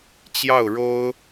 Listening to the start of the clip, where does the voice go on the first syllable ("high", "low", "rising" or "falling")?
falling